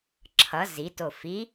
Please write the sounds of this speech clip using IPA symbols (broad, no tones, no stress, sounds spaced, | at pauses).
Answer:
ǁʰ ʌ z i t o f i